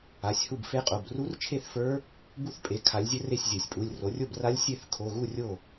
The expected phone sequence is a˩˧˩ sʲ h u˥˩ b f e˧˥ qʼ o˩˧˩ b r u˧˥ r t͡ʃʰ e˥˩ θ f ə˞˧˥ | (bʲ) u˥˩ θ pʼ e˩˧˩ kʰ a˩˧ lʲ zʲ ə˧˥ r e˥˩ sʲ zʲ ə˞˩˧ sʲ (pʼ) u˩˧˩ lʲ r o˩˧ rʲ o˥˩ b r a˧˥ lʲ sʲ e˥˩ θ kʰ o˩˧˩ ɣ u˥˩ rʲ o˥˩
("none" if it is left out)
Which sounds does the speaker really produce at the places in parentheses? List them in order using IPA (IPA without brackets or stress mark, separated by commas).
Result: b, pʼ